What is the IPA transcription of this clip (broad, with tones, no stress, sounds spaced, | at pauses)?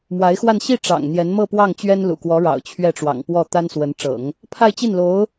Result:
m w a˧˥ ɪ̯ x w a˥˧ n ɕ i˥˩ ʈ͡ʂ ɑ̰˨˩ ŋ n̪ j ɛ˧˥ n m ɤ˥˧ p w ɑ˥˩ ŋ t͡ɕ ɥ ɛ˥ n l ṵ˨˩ k w ɔ˧˥ ɻ ɑ̰˨˩ ʊ̯ t͡ɕʰ ɥ ɛ˥˩ ʈ͡ʂ w ɑ̰˨˩ ŋ p w ɔ˥˩ t̪ a˥ n s w ə˧˥ n ʈ͡ʂ ɤ̰˨˩˦ ŋ | pʰ a˥˧ ɪ̯ t͡ɕ i˥˩ n l o˧˥ ʊ̯